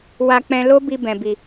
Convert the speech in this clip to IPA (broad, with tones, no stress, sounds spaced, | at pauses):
w a˧ k͡p ɛ̃˧ l o˦ b i˧ b ɛ̃˨ b i˨